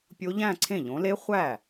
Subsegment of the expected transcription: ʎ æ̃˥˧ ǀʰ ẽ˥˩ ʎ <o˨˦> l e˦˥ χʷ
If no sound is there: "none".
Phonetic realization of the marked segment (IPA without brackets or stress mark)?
õ˨˦